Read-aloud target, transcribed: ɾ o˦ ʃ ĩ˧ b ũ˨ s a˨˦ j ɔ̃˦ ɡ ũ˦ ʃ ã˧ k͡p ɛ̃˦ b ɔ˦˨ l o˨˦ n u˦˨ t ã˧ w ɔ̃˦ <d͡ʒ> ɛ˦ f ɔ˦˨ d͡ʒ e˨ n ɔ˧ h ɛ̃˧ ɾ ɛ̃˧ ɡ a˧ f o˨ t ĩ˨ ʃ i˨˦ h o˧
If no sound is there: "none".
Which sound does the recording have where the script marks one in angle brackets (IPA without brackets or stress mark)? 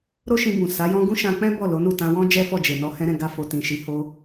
d͡ʒ